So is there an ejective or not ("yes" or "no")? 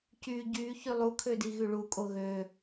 yes